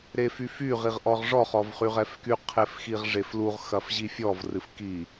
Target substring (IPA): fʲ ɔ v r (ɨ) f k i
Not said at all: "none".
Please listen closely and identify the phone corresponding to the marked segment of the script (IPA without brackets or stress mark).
ɨ